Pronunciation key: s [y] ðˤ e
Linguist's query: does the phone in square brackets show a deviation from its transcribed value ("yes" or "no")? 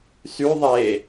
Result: no